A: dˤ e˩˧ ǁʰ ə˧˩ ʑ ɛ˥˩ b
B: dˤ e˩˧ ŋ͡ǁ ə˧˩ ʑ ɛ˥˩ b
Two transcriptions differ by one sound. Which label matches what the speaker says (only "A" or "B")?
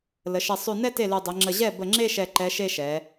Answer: B